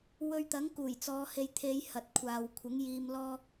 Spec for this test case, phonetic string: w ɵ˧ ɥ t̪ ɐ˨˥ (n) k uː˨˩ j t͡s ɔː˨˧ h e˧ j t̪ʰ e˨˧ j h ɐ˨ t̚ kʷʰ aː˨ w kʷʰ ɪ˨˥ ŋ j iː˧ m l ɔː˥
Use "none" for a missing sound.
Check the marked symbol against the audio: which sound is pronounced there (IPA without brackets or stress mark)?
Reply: ŋ